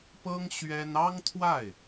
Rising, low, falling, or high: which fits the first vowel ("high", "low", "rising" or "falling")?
high